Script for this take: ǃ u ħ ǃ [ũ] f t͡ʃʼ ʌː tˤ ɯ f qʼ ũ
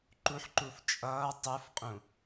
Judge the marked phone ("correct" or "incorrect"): incorrect